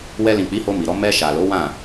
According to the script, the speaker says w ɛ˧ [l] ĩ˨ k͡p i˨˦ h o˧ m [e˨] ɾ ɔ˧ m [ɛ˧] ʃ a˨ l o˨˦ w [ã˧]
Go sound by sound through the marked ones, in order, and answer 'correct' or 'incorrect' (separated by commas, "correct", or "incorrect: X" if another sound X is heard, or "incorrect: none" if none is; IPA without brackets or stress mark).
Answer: correct, incorrect: i˨, correct, incorrect: ã˦˨